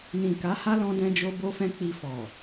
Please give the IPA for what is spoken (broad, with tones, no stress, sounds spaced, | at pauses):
n ĩ˨ k a˨˦ h a˦ l ɔ̃˧ d ɛ̃˧ d͡ʒ o˧ b o˧ f ɛ̃˧ k͡p i˧ f ɔ˨